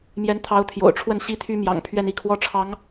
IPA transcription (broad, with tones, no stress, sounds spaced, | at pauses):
m j ɛ˧˥ n t̪ʰ ɑ˧˥ ʊ̯ t̪ʰ j o̰˨˩ ʊ̯ ʈ͡ʂʰ w ə˥˩ n ɕ i˥ t̪ʰ y˥ m j ɑ̰˨˩ ŋ pʰ ɥ ɛ˥˧ n i˥˩ kʰ w ɔ˥ ʈ͡ʂʰ ɑ˧˥ ŋ